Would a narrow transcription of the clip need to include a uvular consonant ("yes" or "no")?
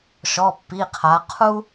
yes